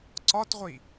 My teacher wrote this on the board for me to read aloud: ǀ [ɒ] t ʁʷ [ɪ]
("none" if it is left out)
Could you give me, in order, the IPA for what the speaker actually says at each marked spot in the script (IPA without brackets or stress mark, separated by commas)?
ɒ, i